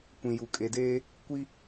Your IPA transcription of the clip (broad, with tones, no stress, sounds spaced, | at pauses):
kʷ ĩ˨ j u˨ kʼ e˨ d eː˦ | kʷ i˦